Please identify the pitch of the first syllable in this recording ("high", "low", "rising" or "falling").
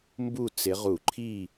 falling